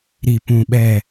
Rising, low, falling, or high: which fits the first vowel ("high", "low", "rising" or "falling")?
low